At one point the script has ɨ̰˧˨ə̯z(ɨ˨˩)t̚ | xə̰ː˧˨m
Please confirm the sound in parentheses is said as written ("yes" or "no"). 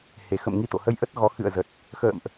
no